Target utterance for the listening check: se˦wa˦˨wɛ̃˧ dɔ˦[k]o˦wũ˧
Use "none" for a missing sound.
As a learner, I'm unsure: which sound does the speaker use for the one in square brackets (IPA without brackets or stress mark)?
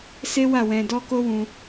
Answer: k